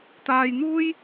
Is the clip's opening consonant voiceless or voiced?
voiceless